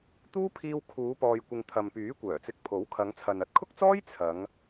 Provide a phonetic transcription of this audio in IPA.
t̪ uː˥ pʰ iː˧ w kʰ uː˨˧ p ɔː˨ j kʷ ɪ˨ ŋ t̪ʰ ɐ˨ m p yː˨˥ kʷ œː˨˩ t͡s ɪ˧ k̚ pʰ o˨˥ w kʰ ɐ˨˧ ŋ t͡sʰ ɐ˨ n ɐ˥ t̚ kʰ ʊ˥ k̚ t͡s ɔː˥ j t͡sʰ ɐ˨˧ ŋ

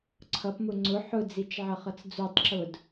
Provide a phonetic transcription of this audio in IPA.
ǀʰ ʌ p m ʊ ŋ͡ǀ ʊ ħ ʊ d͡z i t͡ʃ ʕ ʌ χ ʌ t͡s d͡z u tˤ ǁ ʊ d

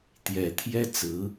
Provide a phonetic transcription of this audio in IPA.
t̪ j ɛ˨˩ t̪ʰ j ɛ˥ t͡s ɹ̩˧˥

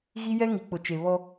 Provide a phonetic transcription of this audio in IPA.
ɣ i˦ j ɛ˦ ŋ i˨ k͡p ʊ˨ t͡ʃ e˨ β ɔ˦

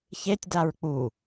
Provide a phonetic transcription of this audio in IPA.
ç e tʲ d a ɹ k͡p u

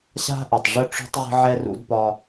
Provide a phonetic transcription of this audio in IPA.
ɕ a̤˥ ʔ ə˩ tˤ ʐ ə˥ ʈ͡ʂ ṳ˥ tˤ ʁ ə̤˥ ʕ ɛ˥ r ṵ˥ d p ɒ˥

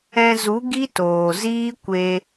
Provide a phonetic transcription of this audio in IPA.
ɛ̃˧ z u˨˦ ɡ i˦ t oː˨ z iː˦ kʷ e˧

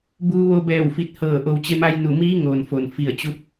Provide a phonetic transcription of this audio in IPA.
b uː˧ ʋ o˧ b ɛː˧˩ w f i˧˩ t̚ h ɤː˧˩ ʔ o˩ w t͡ɕ e˧ m a˧ j n u˧˩ m iː˧˥ ŋ oː˩ n f o˩ n f i˧˩ ə̯ t͡ɕ u˧ p̚

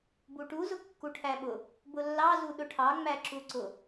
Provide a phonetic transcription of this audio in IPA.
b u ʈ u z ʊ kː u ʈʰ æ ɓ ʊ | b ʊ lː ɑ z u ɗ ʊ ʈʰ ɑ ŋ͡m æ ǁ u ǀ ʊ

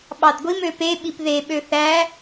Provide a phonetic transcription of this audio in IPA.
ɓ ɑ d ɡʷ i m ø p e ɓ i p ð e ɓ ø θ æ

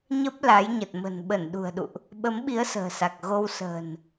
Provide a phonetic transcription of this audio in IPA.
ɲ ə˦˥ p̚ l a˨˦ j ɲ ə˨˩ t̚ m ə̤˨˩ n ɓ ə˧˩ n ɗ ṳ˨˩ ə̯ ɗ ṵ˧˨ ʔ | ɓ ə˨˦ m ɓ i˨˦ ə̯ s ə̤ː˨˩ s a˨˩ k̚ ɣ o˧ w s ə̤ː˨˩ n

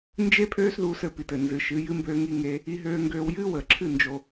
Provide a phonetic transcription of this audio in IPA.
n d͡ʒ e˦ pʰ øː˦ s ð uː˧ s ɘ˨ p i˨ t ɘ˨ n z ɨ˨ ʃ ɨ˨˦ j ɨ˦ m b øː˦ ŋ i˦ ŋ e˦ | i˧ ɦ øː˧ ŋ ɡ øː˧ w j ɨː˦ w əː˨ ǁʰ ɨ˦˨ n d͡ʒ o˧

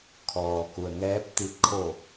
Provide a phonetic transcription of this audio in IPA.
kʰ ɔː˩ k u˩ ə̯ ŋ ɛː˧˥ p̚ t̪ i˧ t̚ kʰ o˧˩

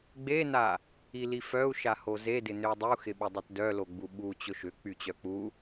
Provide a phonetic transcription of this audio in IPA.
ɡ͡b e n a | i l i f œ u̯ ʃ a h o z e d ɪ n ʏ w dˤ u x ɪ ɓ ʏ dˤ ʊ t d œ l o ɡ͡b u ɓ u t͡ɕ ʊ ʃ ʏ k͡p y t͡ɕ œ k͡p u

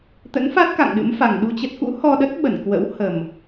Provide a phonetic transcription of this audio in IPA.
t̪ ə̰˧˥ n f a˦˥ t̚ k a̰˧˨ ŋ ɗ ɨ̰˧˥ m f a˨˩ ŋ ɗ u˧ t͡ɕ ə˦˥ t̚ k ṵ˧˥ h ɔ˧ ɗ ə˦˥ t̚ ɓ ə˧˩ n k w ə̰˧˥ w h ə˨˩ m

